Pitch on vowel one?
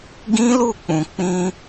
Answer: high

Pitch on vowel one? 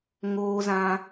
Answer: high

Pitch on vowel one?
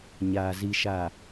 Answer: low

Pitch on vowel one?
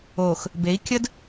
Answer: low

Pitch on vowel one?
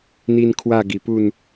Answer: high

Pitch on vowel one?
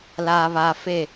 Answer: low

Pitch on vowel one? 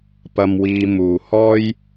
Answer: low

